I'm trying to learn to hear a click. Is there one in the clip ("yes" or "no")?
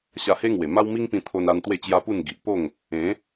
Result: no